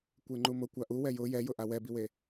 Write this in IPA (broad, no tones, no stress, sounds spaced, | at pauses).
kʷ e ŋ͡ǃ u m ʊ kʷ a ʔ u w ɛ j ʊ j ɛ j ʊ ʔ a w ɛ b i w e